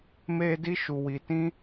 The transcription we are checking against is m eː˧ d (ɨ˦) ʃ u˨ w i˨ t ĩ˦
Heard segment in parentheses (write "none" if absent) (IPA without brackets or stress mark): i˦